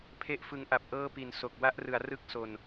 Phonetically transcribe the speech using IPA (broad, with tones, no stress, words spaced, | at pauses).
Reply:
pʰe˥˩ʔfɯ˧ŋʔa˨˩p̚ʔɤː˥˩ pi˨˩nso˨˩k̚ wa˥˩ʔrɯ˩˦a̯rɯ˦˥k̚so˨˩n